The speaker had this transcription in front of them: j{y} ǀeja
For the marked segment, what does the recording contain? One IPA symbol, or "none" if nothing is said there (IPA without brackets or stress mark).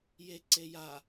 e